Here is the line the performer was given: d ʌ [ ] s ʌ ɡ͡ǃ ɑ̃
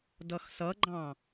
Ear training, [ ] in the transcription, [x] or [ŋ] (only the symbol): x